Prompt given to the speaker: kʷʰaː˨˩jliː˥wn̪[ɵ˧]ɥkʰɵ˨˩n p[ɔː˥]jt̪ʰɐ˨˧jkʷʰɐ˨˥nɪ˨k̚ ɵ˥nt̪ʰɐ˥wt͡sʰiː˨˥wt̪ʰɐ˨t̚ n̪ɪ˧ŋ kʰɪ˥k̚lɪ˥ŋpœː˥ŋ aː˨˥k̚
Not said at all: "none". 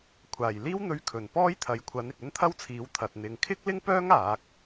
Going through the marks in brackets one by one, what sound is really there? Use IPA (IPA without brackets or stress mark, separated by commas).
ɵ˧, ɔː˥